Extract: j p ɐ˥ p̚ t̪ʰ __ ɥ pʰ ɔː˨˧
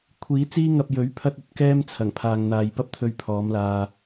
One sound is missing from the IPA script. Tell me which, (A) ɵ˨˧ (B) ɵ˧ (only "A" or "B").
B